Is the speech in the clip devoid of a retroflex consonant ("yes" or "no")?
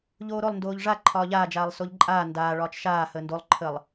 no